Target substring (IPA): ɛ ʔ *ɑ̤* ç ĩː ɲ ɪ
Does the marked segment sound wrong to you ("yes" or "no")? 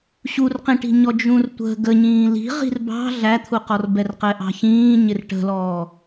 no